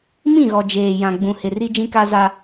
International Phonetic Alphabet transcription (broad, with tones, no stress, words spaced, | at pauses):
mĩ˦˨ɣɔ˨ d͡ʒeː˨jã˨ ɡ͡bũ˨hɪ˨ri˦ d͡ʒĩ˦ka˦za˦